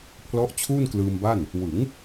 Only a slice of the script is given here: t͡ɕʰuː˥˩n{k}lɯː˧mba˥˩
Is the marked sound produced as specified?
yes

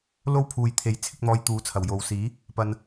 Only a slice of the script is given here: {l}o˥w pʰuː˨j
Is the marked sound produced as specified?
yes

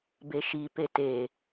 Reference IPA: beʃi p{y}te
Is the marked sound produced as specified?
no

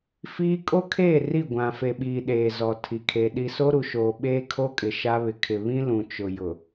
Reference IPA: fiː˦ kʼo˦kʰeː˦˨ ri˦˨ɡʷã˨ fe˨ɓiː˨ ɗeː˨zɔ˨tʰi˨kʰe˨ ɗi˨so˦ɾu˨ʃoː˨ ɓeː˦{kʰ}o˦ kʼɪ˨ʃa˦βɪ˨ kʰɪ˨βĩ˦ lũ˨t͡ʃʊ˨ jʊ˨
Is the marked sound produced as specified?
yes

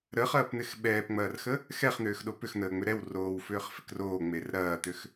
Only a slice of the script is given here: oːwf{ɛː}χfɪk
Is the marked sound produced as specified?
no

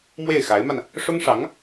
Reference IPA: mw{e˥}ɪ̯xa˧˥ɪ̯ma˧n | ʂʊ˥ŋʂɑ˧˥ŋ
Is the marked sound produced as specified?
no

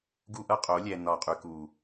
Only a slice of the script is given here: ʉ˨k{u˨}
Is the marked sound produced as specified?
yes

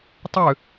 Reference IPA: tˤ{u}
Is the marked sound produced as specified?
no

